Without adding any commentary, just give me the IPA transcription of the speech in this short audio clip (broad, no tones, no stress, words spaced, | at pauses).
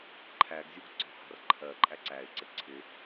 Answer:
ǃʰæɡzʲuɡ ǀɔ̤hɑ̤rǃʰɜǃʼæ ǀæɪ̯ǀɪ ǀʰɪ